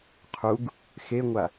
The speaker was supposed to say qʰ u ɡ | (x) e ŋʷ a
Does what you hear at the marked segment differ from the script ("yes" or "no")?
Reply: no